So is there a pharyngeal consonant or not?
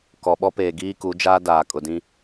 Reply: no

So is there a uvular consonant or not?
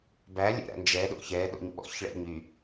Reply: no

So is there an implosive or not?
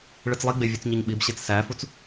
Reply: yes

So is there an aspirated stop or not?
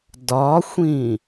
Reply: no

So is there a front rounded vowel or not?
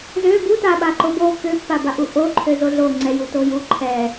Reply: yes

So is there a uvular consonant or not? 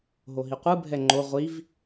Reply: yes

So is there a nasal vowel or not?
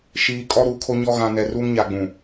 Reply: yes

